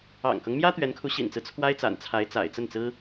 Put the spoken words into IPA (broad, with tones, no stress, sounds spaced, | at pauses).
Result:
ɑ̰˨˩ ŋ k ɤ˦ ŋ m j ä˥ t̪ ɥ ɛ˧˥ n kʰ u˧˥ ɕ ḭ˨˩ n t͡s ɹ̩˦ t͡sʰ w a˥ ɪ̯ t͡s a̰˨˩ n t͡sʰ a˧˥ ɪ̯ t͡s a̰˨˩ ɪ̯ t͡s ə˥˩ n t͡s ɹ̩˥